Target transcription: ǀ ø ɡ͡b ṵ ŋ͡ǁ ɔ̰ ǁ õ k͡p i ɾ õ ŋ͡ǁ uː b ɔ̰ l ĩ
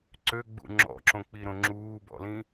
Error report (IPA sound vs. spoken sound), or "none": none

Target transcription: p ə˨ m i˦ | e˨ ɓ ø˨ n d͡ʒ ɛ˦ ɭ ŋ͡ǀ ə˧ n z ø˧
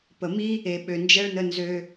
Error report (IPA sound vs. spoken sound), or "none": ŋ͡ǀ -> n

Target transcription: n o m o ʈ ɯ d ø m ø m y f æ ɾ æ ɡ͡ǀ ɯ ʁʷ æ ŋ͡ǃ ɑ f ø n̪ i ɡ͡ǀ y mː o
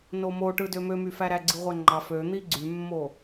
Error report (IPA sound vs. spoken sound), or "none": none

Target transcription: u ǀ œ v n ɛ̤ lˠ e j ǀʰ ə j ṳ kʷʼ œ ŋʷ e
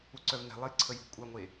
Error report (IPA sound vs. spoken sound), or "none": none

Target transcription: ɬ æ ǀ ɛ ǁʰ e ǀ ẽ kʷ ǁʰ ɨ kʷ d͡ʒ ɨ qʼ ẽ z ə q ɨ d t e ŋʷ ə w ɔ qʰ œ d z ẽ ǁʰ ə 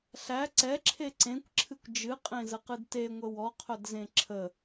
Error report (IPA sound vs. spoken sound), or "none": none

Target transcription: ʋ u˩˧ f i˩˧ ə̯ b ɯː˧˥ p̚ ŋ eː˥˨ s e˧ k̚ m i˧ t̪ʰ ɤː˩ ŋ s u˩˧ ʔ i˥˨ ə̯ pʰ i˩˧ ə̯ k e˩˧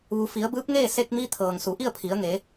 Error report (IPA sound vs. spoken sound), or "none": k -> ŋ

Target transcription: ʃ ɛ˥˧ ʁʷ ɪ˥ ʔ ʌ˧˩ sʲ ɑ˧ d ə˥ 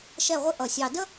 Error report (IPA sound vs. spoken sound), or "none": none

